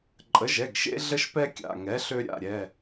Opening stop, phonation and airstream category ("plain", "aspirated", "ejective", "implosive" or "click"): click